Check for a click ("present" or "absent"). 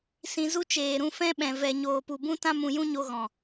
absent